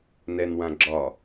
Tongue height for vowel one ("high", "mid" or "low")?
mid